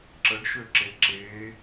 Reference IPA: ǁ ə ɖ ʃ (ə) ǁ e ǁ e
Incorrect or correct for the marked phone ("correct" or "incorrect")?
incorrect